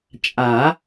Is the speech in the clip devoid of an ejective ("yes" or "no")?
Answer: no